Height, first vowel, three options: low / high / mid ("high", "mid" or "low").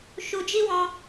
high